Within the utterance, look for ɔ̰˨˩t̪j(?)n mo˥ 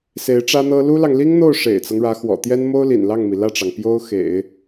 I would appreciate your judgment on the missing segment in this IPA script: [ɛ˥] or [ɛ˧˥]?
ɛ˥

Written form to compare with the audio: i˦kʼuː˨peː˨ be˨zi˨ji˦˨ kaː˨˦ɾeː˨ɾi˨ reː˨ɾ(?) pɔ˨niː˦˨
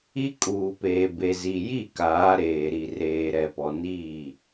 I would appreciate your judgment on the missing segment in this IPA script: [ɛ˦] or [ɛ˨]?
ɛ˨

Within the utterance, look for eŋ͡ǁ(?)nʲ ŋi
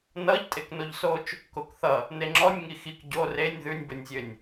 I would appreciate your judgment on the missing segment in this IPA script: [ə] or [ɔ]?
ɔ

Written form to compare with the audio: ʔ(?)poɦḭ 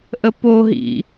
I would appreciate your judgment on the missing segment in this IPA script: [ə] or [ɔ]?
ə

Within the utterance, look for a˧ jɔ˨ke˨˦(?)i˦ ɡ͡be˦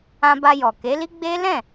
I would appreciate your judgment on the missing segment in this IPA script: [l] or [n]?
l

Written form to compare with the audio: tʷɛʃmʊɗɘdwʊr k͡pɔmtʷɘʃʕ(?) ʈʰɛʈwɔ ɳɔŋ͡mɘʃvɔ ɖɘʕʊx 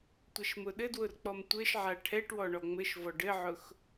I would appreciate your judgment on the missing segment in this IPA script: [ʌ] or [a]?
a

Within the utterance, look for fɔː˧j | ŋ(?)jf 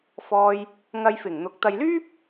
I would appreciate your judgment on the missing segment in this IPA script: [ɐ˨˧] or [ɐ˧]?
ɐ˧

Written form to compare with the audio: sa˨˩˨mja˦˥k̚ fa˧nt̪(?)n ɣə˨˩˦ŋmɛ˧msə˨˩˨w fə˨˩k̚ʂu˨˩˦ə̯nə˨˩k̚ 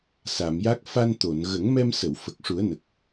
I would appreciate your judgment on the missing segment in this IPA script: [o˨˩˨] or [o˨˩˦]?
o˨˩˨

